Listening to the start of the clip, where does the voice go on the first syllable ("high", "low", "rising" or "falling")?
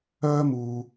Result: high